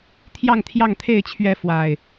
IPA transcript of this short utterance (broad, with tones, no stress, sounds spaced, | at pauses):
t̪ʰ j ɑ˥˨ ŋ t̪ʰ j ɑ˥˨ ŋ t̪ʰ e˥˨ ɪ̯ t͡ɕʰ ɥ ɛ˥˨ f w a˨˩ ɪ̯